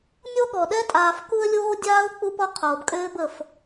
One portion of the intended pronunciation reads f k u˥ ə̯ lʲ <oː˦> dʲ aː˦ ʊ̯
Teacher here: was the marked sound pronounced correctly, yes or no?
yes